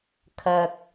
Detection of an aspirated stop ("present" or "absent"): present